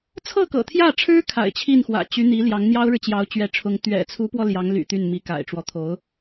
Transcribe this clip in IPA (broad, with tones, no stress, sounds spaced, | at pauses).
t͡sʰ ɤ˥˩ k ɤ̰˨˩ t̪ʰ j ä˥˩ ʈ͡ʂʰ ɻ̩˥ kʰ a̰˨˩ ɪ̯ t͡ɕʰ i˥˩ n x w ä̰˨˩ t͡ɕ y˧˥ n̪ i˧˥ l j ɑ˧˥ ŋ n̪ j ɑ˥ ʊ̯ ɻ ɻ̩˨ t͡ɕ j ɑ˧˥ ʊ̯ t͡ɕ ɥ ɛ˧˥ ʈ͡ʂʰ ʊ˧˥ ŋ t̪ ɥ ɛ̰˨˩ t͡sʰ u˧˥ p w ɔ˧ l j ɑ˧˥ ŋ l y̰˨˩ t̪ y˥˩ n m i˧˥ k a̰˨˩ ɪ̯ ʈ͡ʂ w ɔ˦ t̪ʰ o˧˥ ʊ̯